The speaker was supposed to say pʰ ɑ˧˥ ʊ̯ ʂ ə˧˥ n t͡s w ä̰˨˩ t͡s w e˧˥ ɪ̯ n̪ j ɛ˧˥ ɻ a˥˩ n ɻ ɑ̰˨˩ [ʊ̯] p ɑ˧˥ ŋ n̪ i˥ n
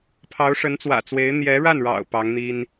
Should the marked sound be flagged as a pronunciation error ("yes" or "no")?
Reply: no